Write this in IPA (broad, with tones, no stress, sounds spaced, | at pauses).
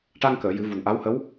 ʈ a˧ ŋ k əː˨˩˨ j ɨ˨˩˦ v u˨˩ n ʔ a˧˥ w h ə˧˥ w